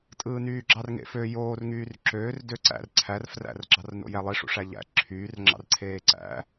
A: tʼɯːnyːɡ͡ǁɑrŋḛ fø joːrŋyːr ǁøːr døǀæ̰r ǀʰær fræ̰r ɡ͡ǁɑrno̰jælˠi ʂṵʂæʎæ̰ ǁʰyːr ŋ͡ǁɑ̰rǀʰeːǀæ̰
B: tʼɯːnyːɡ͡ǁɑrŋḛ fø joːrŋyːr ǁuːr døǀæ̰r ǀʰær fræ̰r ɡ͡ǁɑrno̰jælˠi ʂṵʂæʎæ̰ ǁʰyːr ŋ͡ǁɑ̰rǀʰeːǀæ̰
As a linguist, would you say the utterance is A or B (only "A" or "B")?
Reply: A